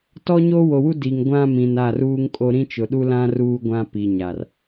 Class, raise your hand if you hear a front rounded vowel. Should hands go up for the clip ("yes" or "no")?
no